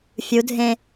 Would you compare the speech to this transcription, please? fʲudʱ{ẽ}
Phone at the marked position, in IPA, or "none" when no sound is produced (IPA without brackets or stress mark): ẽ